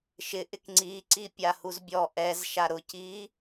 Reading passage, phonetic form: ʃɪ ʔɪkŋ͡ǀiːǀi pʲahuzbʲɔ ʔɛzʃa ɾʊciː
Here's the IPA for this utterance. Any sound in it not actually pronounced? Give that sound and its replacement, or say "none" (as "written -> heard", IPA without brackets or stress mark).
none